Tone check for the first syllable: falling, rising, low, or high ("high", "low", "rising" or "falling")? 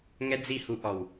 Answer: high